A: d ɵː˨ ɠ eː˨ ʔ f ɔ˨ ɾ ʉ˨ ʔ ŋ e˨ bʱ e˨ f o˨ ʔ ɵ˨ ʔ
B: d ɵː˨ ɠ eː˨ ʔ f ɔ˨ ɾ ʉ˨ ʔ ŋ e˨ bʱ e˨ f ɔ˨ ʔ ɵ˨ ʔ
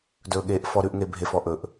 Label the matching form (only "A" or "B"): B